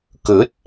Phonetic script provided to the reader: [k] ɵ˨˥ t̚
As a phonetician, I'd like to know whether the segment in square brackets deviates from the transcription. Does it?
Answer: no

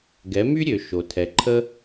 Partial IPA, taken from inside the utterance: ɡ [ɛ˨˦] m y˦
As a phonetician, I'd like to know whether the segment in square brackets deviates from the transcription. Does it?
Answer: no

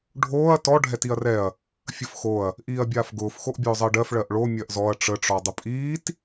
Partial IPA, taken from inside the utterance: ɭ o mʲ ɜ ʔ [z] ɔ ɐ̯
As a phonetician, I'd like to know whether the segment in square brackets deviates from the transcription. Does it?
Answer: no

